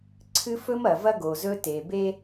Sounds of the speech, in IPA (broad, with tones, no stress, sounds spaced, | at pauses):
ǀʰ ɨ˦ f ɵ˦ m ɐ˨ v ɐ˦ ɡ o˨ z ɵ˦ t e˨ b e˦